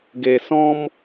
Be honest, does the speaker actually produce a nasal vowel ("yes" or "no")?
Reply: yes